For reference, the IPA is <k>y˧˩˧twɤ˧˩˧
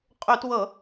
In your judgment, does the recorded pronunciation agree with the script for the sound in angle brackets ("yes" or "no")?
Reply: no